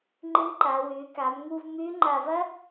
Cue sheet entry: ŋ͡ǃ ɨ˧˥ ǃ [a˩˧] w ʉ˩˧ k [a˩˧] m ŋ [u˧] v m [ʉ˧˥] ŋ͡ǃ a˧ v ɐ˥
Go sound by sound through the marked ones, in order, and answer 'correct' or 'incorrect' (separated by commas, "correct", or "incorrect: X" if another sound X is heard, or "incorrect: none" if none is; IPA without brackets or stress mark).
correct, correct, correct, correct